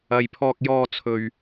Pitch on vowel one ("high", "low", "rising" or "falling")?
low